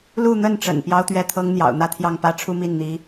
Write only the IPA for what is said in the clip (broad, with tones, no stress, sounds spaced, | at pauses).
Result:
l u˥˧ n̪ ə˥˩ n ʈ͡ʂ ə̰˨˩ n p j ɑ˥ ʊ̯ t̪ ɥ ɛ˥˩ t̪ʰ ɤ˥ ŋ n̪ j ɑ̰˨˩ ʊ̯ n̪ ä˥˧ t̪ʰ j ɑ˥˩ ŋ p ä˥ ʈ͡ʂʰ u˥ m i˥˩ n n̪ i˧˥